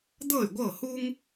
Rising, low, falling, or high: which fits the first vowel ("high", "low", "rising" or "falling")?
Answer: falling